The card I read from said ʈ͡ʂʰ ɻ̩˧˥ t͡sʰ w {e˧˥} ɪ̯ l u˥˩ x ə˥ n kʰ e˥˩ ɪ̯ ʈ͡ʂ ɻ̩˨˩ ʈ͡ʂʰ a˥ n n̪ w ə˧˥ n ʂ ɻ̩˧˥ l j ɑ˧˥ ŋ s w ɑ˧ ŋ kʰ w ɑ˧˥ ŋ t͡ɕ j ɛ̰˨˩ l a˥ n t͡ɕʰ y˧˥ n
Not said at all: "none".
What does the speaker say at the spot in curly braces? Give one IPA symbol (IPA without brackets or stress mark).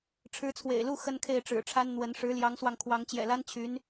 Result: ḛ˨˩